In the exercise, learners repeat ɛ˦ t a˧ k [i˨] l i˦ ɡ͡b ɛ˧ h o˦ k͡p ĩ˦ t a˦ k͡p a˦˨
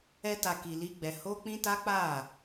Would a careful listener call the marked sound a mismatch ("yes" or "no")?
yes